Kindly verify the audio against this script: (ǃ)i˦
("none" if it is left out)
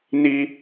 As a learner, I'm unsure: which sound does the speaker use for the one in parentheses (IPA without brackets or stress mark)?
n